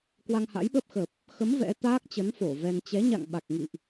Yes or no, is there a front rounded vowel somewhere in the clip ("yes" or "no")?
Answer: no